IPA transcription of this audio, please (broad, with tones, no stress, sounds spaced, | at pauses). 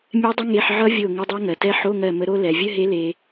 mʲ ɛ˦˥ dˤ ə˦˥ ŋ e˧˥˧ ħ ʕ ʌ˦˥ vʲ o˧˩ ŋ ə˧˥˧ dˤ a˦˥ ŋ ɜ˩ t ɛ˦˥ ħ o˧˥˧ ŋ ɜ˧˩ m ə˨˦ ɾ o˦˥ l ɛ˩ vʲ ə˧˥˧ ɦ e˨˦ l e˩